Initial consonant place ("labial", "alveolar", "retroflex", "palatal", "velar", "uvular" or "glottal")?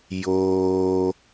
palatal